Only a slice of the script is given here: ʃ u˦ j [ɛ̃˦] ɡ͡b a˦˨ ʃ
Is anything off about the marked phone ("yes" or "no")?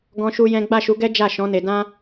no